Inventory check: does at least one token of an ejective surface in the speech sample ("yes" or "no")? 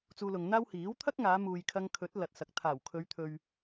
no